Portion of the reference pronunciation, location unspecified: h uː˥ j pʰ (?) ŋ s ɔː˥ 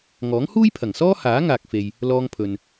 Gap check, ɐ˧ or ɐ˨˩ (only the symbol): ɐ˨˩